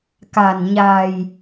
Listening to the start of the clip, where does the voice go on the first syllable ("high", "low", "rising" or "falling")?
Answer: low